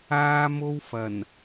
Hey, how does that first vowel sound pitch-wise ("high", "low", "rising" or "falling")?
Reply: high